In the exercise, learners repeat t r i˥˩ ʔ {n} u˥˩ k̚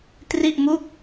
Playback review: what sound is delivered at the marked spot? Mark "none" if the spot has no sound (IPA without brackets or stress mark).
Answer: m